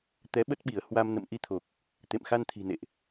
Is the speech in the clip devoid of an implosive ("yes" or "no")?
no